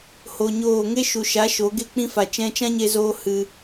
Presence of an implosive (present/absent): absent